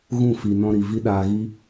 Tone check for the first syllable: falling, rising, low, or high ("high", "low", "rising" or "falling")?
falling